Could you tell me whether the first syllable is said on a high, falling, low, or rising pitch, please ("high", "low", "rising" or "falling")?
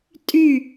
falling